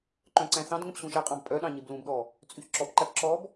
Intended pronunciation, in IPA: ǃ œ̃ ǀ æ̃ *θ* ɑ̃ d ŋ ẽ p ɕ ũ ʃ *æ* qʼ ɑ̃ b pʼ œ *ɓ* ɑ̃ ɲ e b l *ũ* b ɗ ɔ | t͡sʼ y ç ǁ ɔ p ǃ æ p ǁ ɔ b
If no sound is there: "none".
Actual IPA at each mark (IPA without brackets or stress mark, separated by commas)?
θ, æ, ɗ, ũ